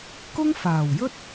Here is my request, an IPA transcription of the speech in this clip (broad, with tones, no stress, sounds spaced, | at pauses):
k ʊ˥ ŋ f aː˨˩ w j ɵ˥ t̚